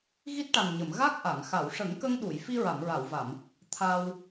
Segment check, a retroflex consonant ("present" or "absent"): present